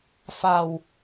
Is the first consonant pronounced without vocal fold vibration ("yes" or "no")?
yes